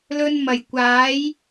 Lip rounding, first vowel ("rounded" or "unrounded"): rounded